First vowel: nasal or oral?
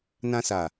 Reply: nasal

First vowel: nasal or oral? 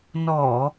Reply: oral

